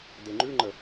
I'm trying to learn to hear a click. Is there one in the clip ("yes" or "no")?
yes